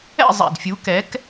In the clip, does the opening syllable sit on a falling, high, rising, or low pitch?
falling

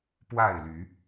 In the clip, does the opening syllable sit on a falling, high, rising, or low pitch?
falling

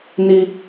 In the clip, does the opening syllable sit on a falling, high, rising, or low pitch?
low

